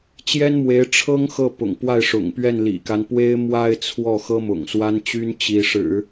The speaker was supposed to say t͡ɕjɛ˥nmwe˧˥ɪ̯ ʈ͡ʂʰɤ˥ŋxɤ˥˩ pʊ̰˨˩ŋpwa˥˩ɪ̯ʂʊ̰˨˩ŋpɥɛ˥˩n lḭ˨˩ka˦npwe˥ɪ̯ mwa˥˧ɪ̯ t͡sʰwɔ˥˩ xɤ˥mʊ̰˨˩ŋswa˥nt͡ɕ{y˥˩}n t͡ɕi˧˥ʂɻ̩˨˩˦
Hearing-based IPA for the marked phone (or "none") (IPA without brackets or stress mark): y˥